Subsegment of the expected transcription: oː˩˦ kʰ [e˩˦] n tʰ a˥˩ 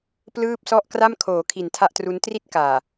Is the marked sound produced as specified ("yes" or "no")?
no